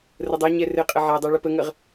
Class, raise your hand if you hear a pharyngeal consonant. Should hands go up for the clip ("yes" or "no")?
yes